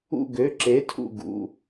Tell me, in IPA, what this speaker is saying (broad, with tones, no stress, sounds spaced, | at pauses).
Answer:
ṵ˧˩ ɡ ø˩˧˩ ǁ e˩˥ tʰ ṵ˧˩ ɡ ṵ˩˧˩